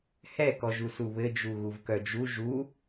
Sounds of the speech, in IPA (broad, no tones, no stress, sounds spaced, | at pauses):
h ɛ k ɔ ʒ u s u β ɘ d͡ʒ u ɣ u v k œ d͡ʒ u ʒ u